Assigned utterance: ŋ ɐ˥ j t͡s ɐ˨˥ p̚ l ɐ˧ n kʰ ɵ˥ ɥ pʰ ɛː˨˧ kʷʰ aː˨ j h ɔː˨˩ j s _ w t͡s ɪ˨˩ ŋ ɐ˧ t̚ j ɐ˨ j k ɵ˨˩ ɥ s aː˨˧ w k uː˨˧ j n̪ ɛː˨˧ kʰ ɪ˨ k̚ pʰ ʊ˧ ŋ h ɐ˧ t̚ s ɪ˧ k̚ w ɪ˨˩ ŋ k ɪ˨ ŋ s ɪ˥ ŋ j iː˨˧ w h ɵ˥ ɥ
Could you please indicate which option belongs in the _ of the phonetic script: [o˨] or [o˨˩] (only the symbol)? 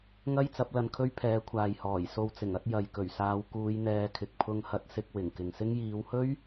o˨